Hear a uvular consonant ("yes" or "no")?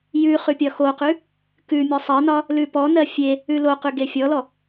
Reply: yes